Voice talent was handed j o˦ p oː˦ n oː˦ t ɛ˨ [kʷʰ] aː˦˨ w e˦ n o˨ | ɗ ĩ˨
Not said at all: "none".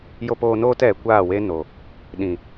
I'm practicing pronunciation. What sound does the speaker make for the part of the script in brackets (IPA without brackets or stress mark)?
kʷ